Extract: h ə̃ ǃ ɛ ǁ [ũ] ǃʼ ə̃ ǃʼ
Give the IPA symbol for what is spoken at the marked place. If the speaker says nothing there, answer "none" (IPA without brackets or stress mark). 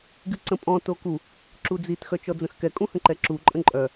u